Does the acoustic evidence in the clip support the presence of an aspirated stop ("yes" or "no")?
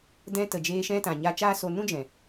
no